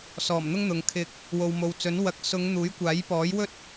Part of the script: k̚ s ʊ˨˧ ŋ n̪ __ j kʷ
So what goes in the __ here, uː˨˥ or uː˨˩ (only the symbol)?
uː˨˥